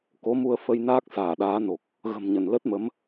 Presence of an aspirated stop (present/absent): absent